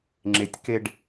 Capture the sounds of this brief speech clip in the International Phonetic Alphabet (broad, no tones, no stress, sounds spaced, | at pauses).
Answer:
ŋ͡ǁ e tʲ k e ɖ